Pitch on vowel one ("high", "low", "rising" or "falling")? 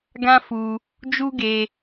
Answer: high